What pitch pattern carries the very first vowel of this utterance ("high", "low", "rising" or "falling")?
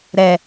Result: low